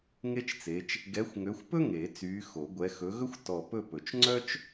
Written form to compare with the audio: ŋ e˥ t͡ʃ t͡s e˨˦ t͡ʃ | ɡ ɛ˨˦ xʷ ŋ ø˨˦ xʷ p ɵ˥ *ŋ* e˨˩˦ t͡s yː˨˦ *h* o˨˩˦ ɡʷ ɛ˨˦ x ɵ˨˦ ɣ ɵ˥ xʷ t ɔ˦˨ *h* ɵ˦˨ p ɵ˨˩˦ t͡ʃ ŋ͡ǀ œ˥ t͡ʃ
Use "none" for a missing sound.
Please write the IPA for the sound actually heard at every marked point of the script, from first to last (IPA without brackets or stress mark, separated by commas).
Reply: ŋ, x, p